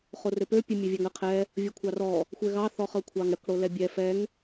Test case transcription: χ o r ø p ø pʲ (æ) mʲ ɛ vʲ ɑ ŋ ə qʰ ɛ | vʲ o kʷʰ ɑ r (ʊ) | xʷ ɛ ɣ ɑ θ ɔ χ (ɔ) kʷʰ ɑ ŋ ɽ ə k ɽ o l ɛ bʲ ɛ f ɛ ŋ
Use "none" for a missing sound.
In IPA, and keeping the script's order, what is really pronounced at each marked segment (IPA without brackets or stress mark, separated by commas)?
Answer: ə, ɔ, ɤ